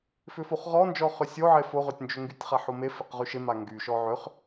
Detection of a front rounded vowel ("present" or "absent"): present